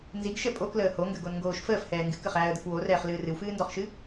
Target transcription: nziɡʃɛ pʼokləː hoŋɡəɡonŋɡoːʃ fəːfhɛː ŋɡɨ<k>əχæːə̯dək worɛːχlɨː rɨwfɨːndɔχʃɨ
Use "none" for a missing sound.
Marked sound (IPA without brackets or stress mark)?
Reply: k